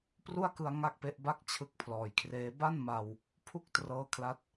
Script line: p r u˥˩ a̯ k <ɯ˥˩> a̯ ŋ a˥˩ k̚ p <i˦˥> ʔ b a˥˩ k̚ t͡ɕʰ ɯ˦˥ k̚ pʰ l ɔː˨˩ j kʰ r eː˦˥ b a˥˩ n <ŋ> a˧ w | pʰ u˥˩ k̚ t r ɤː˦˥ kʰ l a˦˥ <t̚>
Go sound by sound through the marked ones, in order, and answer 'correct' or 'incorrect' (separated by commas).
incorrect, incorrect, incorrect, correct